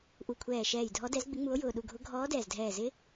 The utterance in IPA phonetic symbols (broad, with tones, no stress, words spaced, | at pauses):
ʔu˧˩kʷʰɛː˧˩ʃɛː˧˩j dʱɔ˧˥dɛ˧˥zɡ͡bɪ˧˥ŋ͡mu˧˥o̯ jʊː˧˩ɗu˧˩ɡʱʊ˧˥ ɡʱɔː˧˥dɛː˧˩zdʱɛː˧˩zɪ˧˥